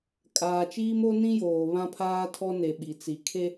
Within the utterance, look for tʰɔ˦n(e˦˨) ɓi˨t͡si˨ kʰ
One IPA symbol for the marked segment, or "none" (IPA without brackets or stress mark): e˨